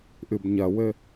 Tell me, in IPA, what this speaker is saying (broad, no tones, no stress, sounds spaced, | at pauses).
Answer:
ʔ ɨ b ɲ ɐ w ɘ